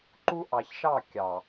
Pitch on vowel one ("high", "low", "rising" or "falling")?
high